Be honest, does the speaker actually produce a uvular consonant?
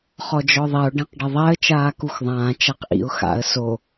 yes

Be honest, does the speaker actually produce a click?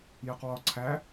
yes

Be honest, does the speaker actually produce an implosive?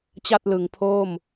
no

